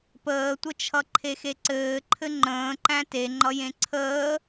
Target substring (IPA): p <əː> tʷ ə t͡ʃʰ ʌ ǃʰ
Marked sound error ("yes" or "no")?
no